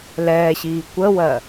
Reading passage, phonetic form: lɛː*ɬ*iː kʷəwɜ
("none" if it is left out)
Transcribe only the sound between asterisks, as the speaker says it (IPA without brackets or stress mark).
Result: ɕ